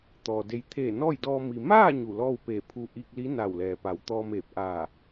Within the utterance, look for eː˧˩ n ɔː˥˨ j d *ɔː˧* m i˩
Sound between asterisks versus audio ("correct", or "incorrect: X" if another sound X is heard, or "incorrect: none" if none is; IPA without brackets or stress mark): correct